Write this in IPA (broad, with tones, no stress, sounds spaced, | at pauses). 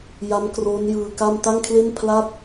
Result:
j a˦˥ m k r oː˦˥ n j ɯː˧ k a˥˩ m t a˥˩ ŋ kʰ l e˥˩ n pʰ l a˥˩ t̚